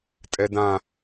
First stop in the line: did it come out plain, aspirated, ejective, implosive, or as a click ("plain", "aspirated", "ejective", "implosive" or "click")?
ejective